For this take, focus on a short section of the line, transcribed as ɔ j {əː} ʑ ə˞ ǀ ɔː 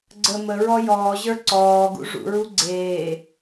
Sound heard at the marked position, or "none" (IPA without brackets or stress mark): ɔː